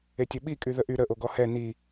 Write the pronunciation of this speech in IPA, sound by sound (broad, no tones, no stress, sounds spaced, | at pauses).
e tʲ ɘ ɓ i kʼ y ð ə ʔ y ɾ ə ʔ o ɡ ɔ h ɛ n i